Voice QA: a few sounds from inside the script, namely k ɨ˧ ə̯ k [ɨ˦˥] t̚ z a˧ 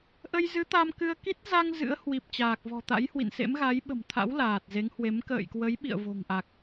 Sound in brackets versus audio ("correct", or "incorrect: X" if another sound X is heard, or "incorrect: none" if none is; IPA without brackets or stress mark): incorrect: i˦˥